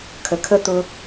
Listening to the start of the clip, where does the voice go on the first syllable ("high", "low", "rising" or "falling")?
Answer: low